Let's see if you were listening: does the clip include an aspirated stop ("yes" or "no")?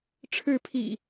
yes